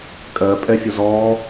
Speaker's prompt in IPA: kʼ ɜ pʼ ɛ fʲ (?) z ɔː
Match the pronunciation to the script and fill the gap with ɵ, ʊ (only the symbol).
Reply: ʊ